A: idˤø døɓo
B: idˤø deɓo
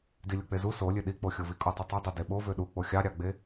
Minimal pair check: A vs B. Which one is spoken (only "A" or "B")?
B